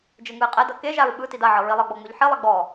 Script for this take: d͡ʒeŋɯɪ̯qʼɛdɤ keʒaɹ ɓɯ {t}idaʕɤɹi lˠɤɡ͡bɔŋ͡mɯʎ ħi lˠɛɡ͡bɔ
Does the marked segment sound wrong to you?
no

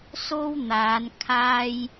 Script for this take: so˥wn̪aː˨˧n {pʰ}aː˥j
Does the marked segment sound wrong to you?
yes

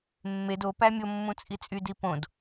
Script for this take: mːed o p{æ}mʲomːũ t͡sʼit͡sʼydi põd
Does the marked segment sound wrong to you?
no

